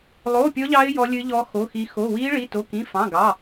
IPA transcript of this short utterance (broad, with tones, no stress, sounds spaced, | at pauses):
lˠ oː˧˥˧ pʲ ɔ˦˥ ʎ ɑ˦˥ ɪ̯ j ɔ˦˥ lʲ ɨ˦˥ ʎ ɔ˦˥ x o˧˥˧ x i˦˥ x o˧˥˧ w iː˦˥ ɭ i˧˥˧ t o˧˥˧ k ĩ˧˥˧ f ɑ̃˧˥˧ ɡ ɑ˧˥˧